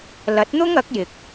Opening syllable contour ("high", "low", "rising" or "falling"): rising